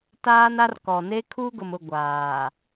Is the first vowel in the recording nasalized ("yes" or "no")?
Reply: no